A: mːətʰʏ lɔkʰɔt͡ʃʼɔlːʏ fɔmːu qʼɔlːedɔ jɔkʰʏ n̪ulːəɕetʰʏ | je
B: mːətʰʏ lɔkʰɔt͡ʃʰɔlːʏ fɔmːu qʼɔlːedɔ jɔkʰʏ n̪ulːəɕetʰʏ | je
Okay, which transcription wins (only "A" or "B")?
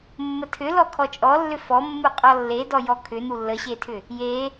A